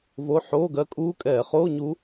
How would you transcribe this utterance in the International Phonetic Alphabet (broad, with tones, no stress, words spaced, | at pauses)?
vo˧˥˧ ħoː˧˥˧ɡɜ˧˥kʼuː˧˥˧ kʼɛː˧˩˧χoː˧˥˧ɲu˧˥